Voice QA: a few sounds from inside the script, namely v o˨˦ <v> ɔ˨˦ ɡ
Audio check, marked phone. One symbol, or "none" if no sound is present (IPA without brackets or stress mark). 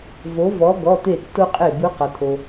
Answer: v